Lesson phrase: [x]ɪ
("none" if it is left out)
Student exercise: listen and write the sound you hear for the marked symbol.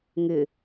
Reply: ŋ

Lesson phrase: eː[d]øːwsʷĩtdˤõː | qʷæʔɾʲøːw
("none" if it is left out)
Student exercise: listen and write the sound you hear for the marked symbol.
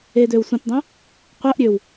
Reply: d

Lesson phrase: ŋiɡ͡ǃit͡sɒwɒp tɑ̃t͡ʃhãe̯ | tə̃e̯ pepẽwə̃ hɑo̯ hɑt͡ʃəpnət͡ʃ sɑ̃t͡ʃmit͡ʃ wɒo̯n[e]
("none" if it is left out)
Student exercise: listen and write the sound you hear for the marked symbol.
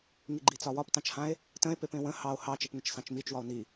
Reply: i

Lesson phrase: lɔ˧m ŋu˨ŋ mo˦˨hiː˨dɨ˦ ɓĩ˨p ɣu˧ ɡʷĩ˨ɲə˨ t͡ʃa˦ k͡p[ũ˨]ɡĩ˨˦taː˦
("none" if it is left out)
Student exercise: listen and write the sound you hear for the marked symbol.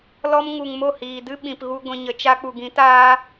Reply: u˨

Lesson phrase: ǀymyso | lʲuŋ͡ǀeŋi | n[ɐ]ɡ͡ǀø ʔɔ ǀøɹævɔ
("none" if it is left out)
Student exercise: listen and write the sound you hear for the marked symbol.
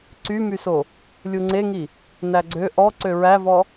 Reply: æ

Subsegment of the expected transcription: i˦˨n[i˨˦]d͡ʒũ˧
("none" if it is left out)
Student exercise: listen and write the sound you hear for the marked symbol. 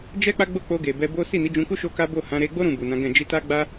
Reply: i˨˦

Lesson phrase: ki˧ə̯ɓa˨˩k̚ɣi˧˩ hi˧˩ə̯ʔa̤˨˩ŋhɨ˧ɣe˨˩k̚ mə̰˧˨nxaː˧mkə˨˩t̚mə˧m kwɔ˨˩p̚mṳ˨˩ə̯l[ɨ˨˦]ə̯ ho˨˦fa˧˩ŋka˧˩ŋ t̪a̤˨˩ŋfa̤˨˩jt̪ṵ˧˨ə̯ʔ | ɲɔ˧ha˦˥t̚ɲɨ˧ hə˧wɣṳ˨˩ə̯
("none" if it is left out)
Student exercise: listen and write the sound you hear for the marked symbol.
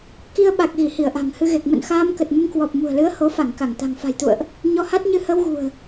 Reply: ɨ˨˦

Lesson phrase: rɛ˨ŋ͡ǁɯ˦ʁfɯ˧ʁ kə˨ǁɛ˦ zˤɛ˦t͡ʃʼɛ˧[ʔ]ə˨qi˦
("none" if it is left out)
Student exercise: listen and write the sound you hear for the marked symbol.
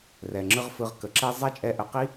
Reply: ʔ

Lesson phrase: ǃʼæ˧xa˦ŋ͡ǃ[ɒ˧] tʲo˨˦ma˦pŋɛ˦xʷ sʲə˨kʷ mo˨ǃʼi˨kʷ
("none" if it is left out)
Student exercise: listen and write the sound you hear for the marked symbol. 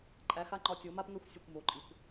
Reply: ɒ˧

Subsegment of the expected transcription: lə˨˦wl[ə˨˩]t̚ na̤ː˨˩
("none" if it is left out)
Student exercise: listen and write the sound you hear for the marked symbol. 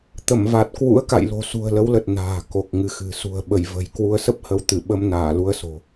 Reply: ə˨˩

